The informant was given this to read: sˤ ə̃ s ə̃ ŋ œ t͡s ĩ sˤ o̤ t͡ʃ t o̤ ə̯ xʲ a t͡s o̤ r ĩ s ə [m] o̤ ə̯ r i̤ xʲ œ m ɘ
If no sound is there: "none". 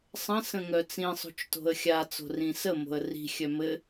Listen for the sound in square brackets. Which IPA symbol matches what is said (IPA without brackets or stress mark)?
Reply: m